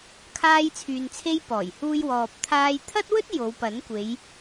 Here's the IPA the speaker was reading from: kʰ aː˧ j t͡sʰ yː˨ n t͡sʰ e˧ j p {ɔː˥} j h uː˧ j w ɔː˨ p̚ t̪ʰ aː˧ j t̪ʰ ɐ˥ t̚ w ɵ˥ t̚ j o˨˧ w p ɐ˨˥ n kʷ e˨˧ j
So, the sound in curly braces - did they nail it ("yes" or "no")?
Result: no